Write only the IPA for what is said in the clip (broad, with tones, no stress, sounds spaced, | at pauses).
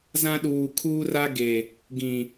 z ã˦ ɗ uː˨ kʰ uː˦ r a˦ ɡ e˨ | ɡ ĩ˨